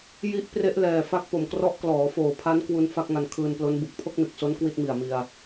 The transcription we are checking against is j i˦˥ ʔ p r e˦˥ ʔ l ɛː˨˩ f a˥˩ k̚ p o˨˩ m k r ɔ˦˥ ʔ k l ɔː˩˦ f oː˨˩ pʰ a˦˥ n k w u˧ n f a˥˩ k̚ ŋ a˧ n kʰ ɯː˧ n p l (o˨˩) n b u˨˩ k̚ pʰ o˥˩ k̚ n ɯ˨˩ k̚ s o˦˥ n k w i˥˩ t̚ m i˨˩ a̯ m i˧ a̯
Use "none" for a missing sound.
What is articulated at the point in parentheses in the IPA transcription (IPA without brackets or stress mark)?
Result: o˦˥